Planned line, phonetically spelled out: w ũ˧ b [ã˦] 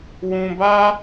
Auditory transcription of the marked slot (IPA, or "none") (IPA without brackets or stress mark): a˦